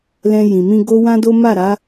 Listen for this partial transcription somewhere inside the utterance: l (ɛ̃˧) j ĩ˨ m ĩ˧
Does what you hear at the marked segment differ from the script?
no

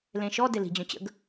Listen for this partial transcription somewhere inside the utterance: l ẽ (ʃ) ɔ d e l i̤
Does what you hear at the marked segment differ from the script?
no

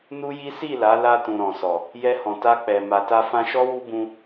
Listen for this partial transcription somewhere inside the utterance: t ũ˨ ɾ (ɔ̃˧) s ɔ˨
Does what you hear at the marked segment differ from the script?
yes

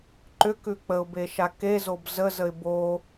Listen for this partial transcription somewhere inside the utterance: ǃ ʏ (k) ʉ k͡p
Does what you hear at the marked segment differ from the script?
no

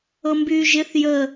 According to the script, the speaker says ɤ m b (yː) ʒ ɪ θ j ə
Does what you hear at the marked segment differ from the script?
no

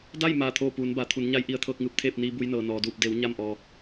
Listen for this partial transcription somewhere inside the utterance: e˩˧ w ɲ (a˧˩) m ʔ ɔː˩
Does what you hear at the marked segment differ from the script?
no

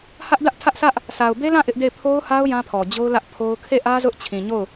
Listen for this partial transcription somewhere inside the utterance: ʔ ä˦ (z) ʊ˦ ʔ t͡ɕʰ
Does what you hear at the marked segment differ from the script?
no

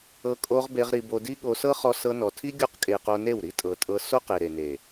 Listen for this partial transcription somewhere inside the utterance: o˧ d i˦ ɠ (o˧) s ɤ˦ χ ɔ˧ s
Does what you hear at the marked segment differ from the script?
no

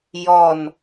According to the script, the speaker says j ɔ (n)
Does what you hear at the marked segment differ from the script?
no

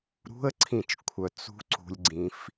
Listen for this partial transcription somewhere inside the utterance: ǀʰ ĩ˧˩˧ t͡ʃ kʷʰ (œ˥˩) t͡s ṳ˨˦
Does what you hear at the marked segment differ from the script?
yes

